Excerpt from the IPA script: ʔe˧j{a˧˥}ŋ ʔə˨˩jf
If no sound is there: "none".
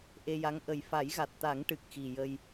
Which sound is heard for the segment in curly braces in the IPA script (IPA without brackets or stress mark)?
a˧˥